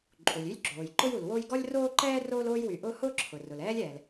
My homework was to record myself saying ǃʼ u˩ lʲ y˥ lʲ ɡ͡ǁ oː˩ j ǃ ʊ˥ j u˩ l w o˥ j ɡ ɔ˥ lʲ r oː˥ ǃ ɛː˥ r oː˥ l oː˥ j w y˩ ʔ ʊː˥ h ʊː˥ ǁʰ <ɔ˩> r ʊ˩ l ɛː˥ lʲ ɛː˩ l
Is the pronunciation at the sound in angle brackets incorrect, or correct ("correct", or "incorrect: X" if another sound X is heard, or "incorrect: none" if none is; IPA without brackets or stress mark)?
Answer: incorrect: ʊ˩